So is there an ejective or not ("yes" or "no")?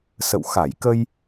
no